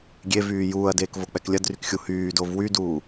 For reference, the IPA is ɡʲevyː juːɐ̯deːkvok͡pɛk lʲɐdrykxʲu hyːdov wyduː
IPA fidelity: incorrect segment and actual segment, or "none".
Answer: none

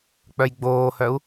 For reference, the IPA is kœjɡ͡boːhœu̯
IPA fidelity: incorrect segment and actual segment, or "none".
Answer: k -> k͡p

